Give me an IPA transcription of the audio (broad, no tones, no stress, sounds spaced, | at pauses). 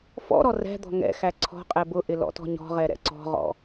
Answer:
f ɔ̰ ɾ ɔ r ɛ̤ d̪ ɔ̤ ŋ ɛ̰ x æ ǀʰ ɔ̤ qʼ ɛ b ʊ ʔ ɪ l ɔ̰ t ɔ̤ ɲ ɔ̤ ʁ ɛ ɾ ɛ̰ ǀ ɔ̤ ʁ ɔ̰